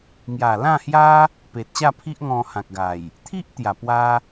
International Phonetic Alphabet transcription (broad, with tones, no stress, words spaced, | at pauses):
ŋja˨˩lã˥˧hja˦ | pe˨t̚ɕa˥˧pʰi˦ʔŋɔ̃˧ hã˨k̚ɡa˨˩j | t̪ʰi˦ʔ t̪ja˨˩pwa˦